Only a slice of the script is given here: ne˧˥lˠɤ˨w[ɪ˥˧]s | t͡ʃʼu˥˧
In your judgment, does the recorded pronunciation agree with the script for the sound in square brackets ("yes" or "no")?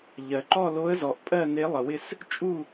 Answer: yes